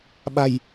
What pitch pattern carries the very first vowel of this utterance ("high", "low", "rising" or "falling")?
low